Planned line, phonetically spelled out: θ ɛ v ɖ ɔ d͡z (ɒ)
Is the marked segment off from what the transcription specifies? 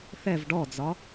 no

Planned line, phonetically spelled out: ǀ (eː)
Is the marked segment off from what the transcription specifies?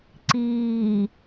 yes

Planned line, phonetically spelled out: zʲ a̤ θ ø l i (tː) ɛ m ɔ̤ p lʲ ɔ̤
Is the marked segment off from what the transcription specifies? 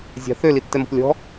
no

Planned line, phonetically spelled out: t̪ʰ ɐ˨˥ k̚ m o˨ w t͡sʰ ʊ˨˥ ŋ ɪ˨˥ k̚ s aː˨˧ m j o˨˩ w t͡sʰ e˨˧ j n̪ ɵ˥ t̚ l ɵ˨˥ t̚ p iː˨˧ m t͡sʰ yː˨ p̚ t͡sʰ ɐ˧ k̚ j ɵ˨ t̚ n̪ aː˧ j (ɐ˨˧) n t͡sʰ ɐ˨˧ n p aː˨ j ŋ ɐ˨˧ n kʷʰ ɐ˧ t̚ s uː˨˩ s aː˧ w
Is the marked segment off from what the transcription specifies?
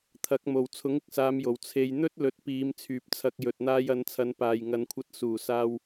no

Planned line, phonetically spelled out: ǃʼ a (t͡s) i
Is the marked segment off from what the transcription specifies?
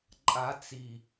no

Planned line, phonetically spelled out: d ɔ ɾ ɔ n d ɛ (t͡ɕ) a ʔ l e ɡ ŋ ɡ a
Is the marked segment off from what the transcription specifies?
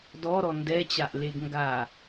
no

